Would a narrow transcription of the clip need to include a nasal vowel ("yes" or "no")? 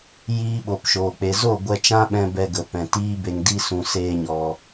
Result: yes